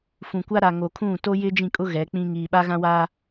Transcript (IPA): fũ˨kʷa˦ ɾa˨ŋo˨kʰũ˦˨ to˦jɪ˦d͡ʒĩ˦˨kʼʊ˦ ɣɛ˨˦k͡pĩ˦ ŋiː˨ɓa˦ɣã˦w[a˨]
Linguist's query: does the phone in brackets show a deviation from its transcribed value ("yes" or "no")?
yes